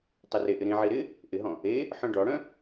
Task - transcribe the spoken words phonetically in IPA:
tˤereʔɪ ɾĩʕi ɾɪ | ʔɪɦɔ̃ | e | ħœ̃ɖɔɽœ̃

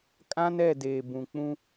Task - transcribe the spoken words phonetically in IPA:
kʼã˦n ɛ˦˨deː˨ bũ˨k͡pũ˦

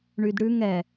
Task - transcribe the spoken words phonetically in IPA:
ɳydɽʉŋ ɛ

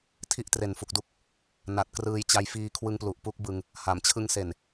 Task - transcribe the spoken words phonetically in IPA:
tʰi˥˩ʔtre˨˩nfu˨˩k̚du˦˥k̚ | na˨˩t̚krɯː˧jt͡ɕa˧j fiː˧kʰwɯ˧ŋplu˨˩ʔ pu˦˥k̚bɯ˧ŋ | ha˩˦mt͡ɕʰɯ˦˥ŋse˨˩n

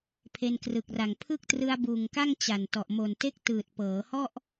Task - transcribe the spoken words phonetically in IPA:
pʰe˧nkrɯ˨˩k̚ra˨˩ŋ pʰɯ˥˩k̚ trɯ˧a̯buː˨˩ŋka˥˩ŋ t͡ɕa˨˩ntɔ˨˩ʔ mo˨˩nte˥˩k̚ tɯː˨˩t̚pɤː˩˦hɔ˥˩ʔ

